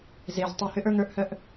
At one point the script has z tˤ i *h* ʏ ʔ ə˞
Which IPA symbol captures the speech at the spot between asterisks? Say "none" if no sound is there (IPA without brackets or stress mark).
h